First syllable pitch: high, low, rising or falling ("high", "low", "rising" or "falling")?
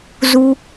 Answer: high